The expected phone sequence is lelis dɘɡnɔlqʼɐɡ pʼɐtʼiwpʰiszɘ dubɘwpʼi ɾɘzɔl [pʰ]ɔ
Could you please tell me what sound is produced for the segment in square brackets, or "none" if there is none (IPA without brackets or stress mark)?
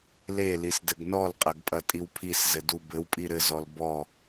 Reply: b